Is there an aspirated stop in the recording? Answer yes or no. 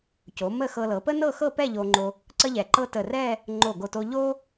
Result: no